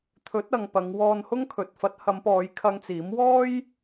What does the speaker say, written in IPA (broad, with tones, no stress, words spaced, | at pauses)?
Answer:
t̪ʰɵ˨˥t̚ɐ˨ŋ pɐ˨˧ŋwɔː˧nhʊ˥ŋ kʰɵ˨t̚fɐ˨˥t̚hɐ˨˧mpɔː˨˧j kʰɐ˧ŋt͡siː˨˥m wɔː˥j